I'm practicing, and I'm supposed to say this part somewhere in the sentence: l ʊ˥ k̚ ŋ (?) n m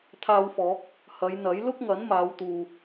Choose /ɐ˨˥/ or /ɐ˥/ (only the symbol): ɐ˨˥